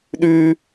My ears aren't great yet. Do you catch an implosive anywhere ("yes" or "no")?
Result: yes